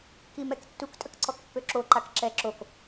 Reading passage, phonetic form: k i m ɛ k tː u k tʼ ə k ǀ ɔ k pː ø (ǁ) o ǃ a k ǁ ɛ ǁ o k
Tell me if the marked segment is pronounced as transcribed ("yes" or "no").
yes